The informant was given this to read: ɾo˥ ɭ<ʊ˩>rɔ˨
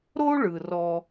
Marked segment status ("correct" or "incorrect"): incorrect